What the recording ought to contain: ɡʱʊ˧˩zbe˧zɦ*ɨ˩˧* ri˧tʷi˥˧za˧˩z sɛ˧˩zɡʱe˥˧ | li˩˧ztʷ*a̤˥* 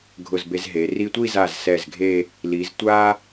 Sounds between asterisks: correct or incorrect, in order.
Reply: incorrect, incorrect

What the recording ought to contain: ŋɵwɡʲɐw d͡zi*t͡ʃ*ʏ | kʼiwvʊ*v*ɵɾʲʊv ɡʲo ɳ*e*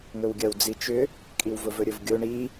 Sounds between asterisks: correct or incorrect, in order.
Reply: correct, correct, incorrect

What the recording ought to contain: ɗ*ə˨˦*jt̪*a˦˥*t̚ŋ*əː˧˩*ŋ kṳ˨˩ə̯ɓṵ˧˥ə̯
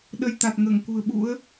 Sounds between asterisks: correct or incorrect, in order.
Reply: correct, incorrect, correct

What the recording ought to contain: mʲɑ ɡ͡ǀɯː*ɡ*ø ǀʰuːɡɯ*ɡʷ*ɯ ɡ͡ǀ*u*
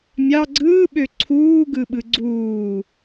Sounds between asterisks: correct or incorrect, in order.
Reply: incorrect, incorrect, incorrect

